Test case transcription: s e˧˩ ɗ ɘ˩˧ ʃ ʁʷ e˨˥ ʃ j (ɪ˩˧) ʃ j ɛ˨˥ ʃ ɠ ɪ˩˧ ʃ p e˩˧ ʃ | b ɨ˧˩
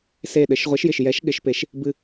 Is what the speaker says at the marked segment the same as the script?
no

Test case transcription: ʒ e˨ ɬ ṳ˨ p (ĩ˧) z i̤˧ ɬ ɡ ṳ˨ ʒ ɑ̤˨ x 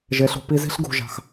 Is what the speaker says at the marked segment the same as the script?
no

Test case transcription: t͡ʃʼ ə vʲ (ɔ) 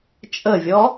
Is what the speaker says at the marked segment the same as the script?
yes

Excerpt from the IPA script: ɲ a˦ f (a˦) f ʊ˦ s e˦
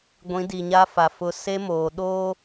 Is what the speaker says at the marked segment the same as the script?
no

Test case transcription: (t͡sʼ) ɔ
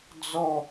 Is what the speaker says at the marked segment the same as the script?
no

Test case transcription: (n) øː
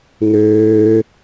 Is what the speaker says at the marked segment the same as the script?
yes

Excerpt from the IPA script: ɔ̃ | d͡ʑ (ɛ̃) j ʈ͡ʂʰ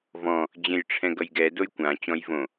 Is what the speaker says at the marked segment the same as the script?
no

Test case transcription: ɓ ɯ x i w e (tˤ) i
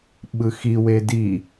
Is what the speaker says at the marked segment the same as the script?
no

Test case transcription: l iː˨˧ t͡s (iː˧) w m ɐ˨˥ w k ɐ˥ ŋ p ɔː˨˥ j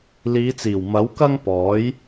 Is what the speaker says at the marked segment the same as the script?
no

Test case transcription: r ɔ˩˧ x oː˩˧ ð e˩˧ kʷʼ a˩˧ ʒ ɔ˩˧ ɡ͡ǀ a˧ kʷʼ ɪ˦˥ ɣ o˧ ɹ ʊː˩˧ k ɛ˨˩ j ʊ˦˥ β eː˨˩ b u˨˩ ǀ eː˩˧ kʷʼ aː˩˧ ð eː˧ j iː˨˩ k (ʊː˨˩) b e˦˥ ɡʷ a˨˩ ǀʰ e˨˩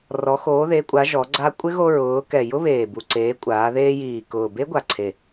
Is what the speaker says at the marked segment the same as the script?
yes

